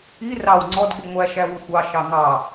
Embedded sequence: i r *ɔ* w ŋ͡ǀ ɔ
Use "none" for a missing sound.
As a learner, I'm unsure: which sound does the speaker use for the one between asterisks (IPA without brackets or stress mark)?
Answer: ɑ